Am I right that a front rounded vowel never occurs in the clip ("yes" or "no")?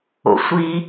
yes